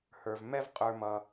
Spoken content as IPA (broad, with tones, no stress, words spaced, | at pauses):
hə˞˨v mɛ˦v qʼə˞˧mʌ˧